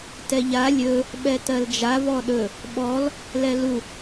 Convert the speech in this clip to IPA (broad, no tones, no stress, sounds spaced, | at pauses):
t ɛ ʎ a lʲ ɵ | ɓ ɛ t ɜ l d͡ʒ a v ɔ ɗ ɵ | ɓ ɔ l | l ɛ l u